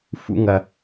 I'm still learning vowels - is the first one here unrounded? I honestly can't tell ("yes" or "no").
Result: no